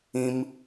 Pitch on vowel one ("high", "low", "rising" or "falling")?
high